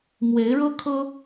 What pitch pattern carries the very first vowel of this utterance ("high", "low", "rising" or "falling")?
rising